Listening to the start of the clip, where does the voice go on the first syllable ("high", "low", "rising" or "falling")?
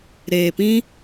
low